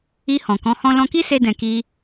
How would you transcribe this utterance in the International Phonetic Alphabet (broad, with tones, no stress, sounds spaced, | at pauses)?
i˧ h ɔ̃˨ k ɔ̃˨˦ h ɔ̃˦ l ɔ̃˧ k i˦ s e˧ d ɛ̃˨ k i˧